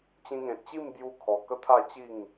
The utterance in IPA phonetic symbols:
t͡ɕ ĩ˧ ŋ ẽ˨ t̚ t͡ɕ i˥˧ m b j u˦ kʰ ɔ˧ k ə˦ t̪ʰ a˥˧ t͡ɕ i˥˧ ŋ

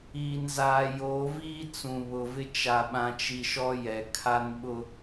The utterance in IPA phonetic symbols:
iː˨ n z aː˨ j oː˨˦ v iː˦ t͡s ũ˨ β ʊ˨ v ɪ˦ t͡ʃ a˨ ɓ ã˨ t͡ʃ i˨ ʃ ɔ˦ j ɛ˨ kʰ a˦ n ɓ ʊ˦

